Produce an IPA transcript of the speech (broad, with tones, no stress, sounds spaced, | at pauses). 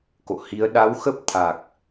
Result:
k o̰˧˨ h i˨˦ ə̯ ɗ a˨˦ w x ə˦˥ p̚ t̪ʰ a˨˩ k̚